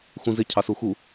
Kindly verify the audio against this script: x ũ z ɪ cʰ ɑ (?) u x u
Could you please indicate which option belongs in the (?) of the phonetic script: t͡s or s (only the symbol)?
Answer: s